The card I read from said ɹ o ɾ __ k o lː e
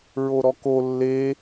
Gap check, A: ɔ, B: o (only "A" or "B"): A